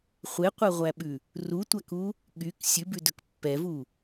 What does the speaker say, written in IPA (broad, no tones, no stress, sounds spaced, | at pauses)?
χʷ e qʷ ɛ ʁʷ æ ɓ ʉ | r u tʷ æ k u | ɠ y k sʲ ʉ b ʉ d ɵ k pː ɛ v u